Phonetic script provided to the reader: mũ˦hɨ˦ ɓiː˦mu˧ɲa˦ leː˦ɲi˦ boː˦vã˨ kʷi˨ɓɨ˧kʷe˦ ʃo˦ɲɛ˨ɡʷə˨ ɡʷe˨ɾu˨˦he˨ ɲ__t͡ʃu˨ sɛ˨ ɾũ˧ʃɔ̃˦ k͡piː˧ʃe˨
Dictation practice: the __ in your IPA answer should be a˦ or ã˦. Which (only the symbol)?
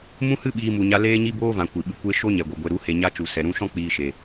a˦